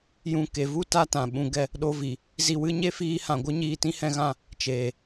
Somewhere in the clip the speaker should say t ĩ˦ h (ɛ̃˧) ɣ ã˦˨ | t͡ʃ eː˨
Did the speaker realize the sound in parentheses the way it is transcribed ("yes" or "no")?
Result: yes